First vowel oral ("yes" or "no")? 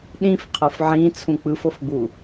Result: no